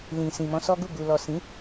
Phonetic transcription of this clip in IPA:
l ĩ˨ s ĩ˨ m ɔ̃˧ s ɔ˦ ɡ u˦˨ ɡ u˨ l ɔ˨ s ĩ˨˦

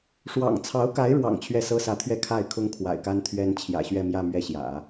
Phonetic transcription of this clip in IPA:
ʂ w ɑ̰˨˩ ŋ t͡sʰ ɑ˧˥ ʊ̯ k a˧˥ ɪ̯ ɻ w ɑ̰˨˩ ŋ t͡ɕʰ ɥ ɛ˥˩ s ɤ˥ s ä˧˥ t̪ʰ ɥ ɛ˥˧ kʰ a˥˩ ɪ̯ kʰ ʊ˥ ŋ kʰ w a̰˨˩ ɪ̯ k a˥ n t̪ʰ ɥ ɛ˥ n t͡ɕʰ j ä̰˨˩ ɕ ɥ ɛ˥˧ m j ä˥˧ m ɥ ɛ˥˩ ɕ j ä̰˨˩˦

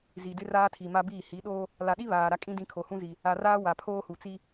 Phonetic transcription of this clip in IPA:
z i˨ d ɪ˦ r aː˦ tʰ i˨ m a˦ b iː˦˨ h i˨˦ ɗ oː˦ | l a˨ ɗ i˦ β aː˨ ɾ a˦ kʼ ĩ˦ d ĩ˦ kʰ o˨ h ũ˦ z i˨ | a˨ r aː˦ w a˨ pʰ oː˦ h u˨ t͡s i˦

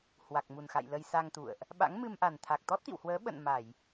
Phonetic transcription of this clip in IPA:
h w a˨˩ k̚ m u˨˩ n x a̰˧˨ j l ə˧ j s a˧ ŋ t̪ ṵ˧˨ ə̯ ʔ | ɓ a̰˧˥ ŋ m ɨ˧ m ʔ a˨˩ n t̪ʰ a˨˩ k̚ t̪ ɔ˦˥ t̚ t̪ ḭ˧˨ w h w əː˨˦ ɓ ə̰˧˨ n m a˧˩˨ j

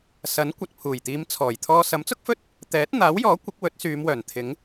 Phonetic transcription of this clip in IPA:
s ɐ˨˥ n kʷ ɐ˨ t̚ pʰ uː˨˩ j t̪ iː˨˧ m t͡sʰ ɔː˨˩ j t̪ʰ ɔː˧ s ɐ˨˥ m t͡s ʊ˥ k̚ f ɵ˥ t̚ | t̪ ɛː˨˥ t̚ n̪ aː˨˥ w j ɔː˨˥ kʷ ɪ˨˥ k̚ w ɵ˨˥ t̚ s yː˨˧ m w œː˨˩ n t̪ʰ ɪ˨˥ ŋ

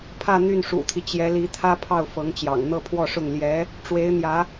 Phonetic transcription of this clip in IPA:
pʰ ä˥˧ n̪ y˥˩ n ʂ ṵ˨˩ t̪ʰ i˦ t͡ɕ j ɛ˧˥ l i˧˥ t̪ʰ ä˥ pʰ ɑ˥˩ ʊ̯ f ɤ˧˥ ŋ t͡ɕ j ɑ̰˨˩ ŋ n̪ ɤ˥˧ pʰ w ɔ˥˧ ʂ ʊ˥˩ ŋ l j ɛ˧˥ | ʈ͡ʂ w e˧˥ ɪ̯ n̪ j ä˧˥

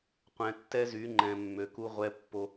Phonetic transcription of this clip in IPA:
qʷ ɛ̃˨ tː ɛ˦ z y˨˦ ŋ͡ǃ ɛ̃˨ mː ø˨ k u˦ ʁʷ ɛ˦ pː o˦

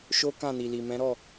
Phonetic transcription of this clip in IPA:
ʃ o˦ k ã˦˨ n i˨ l i˨ m ɛ̃˨˦ ɾ ɔ˦˨

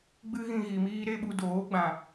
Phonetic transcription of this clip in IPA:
ɡ͡b ɨ˦ ɣ ĩ˧ ɣ i˨ m iː˦ ɾ e˦ ɓ u˧ d oː˨˦ ɡ͡b ã˨

